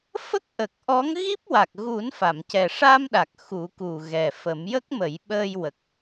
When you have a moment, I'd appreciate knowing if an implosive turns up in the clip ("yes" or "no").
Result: yes